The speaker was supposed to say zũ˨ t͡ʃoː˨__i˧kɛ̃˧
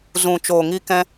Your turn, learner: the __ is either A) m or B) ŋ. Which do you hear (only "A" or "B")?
B